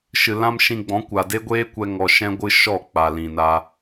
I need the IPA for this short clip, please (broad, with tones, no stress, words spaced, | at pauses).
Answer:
ʃɨ˨ lã˦mʃĩ˧ɡ͡bɔ̃˨˦kʷa˨ de˦ ɡʷeː˦kʷɛ˧ ŋɔ˧ʃɛ̃˦ɡʷɨ˦ʃɔ˦˨ k͡pa˨lĩ˨na˧